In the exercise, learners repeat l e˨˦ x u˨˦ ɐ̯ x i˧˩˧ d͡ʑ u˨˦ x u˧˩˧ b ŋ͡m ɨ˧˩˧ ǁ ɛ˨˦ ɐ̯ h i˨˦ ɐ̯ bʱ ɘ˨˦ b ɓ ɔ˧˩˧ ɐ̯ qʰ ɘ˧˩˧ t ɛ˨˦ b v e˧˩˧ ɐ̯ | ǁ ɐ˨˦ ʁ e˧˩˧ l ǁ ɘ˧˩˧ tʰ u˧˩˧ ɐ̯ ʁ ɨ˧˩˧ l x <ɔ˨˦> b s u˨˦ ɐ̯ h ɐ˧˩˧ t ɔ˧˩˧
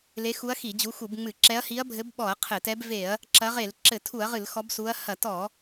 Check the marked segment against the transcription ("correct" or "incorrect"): correct